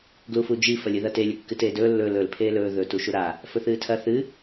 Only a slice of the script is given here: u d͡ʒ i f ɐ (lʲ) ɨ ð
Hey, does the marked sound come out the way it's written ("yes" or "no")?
yes